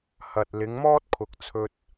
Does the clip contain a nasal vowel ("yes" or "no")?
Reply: no